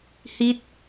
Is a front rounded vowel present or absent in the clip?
absent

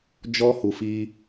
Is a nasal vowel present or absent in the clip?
absent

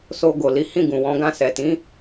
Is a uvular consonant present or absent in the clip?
absent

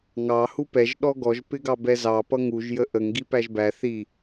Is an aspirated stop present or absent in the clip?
absent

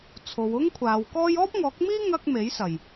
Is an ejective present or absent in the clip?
absent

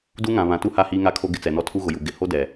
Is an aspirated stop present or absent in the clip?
present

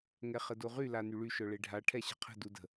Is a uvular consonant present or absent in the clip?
present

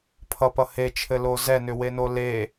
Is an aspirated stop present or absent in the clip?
present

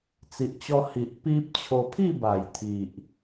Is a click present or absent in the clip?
absent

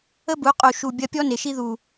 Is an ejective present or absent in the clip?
present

